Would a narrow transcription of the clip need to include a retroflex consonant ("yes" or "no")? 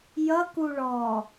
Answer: yes